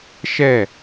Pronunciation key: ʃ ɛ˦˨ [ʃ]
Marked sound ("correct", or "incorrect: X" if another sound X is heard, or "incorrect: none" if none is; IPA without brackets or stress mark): incorrect: none